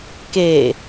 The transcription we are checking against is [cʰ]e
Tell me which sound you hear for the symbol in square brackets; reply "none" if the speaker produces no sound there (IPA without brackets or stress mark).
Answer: k